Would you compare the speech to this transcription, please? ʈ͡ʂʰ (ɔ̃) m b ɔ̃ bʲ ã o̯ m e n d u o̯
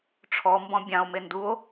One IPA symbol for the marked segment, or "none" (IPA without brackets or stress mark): ɔ